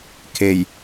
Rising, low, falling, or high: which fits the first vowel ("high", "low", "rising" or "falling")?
low